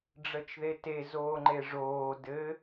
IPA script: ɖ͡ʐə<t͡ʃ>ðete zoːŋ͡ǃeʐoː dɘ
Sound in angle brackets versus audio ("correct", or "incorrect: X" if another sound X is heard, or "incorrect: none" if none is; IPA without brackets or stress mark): correct